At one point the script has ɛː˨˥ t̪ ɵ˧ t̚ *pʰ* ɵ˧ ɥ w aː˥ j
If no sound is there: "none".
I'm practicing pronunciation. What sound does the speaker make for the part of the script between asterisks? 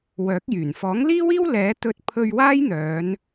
pʰ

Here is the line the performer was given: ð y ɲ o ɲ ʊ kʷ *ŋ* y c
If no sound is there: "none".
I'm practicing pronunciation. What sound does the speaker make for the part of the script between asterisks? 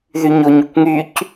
ŋ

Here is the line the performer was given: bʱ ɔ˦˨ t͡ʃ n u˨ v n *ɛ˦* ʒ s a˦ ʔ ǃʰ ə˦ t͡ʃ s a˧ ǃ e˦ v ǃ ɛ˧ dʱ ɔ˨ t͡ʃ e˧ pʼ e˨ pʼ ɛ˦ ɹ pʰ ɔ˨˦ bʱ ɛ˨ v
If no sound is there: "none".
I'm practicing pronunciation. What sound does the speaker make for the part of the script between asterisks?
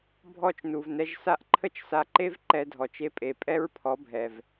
ɛ˧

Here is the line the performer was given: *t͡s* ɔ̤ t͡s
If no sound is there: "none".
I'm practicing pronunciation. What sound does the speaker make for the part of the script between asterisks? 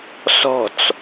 s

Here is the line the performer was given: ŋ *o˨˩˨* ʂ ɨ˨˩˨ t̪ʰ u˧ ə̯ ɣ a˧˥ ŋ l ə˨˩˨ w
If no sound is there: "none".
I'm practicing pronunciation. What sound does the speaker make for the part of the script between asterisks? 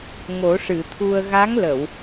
o˨˩˦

